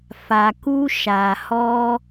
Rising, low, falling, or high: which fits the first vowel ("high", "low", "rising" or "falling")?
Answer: low